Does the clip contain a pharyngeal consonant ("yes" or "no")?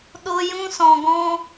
no